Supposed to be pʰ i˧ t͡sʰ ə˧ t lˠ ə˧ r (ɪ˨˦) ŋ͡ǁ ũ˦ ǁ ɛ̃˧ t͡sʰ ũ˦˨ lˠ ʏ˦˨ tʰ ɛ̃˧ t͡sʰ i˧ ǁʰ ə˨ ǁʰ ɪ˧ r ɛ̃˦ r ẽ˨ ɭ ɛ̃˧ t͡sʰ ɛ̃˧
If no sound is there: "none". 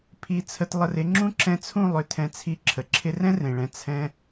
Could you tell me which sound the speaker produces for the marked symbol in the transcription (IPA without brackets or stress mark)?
ɪ˨˦